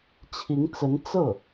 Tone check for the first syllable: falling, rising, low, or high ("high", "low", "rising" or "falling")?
rising